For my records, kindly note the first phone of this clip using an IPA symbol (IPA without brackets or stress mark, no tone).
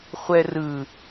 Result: χʷ